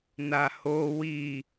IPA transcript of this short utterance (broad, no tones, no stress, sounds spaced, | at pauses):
n a h o w i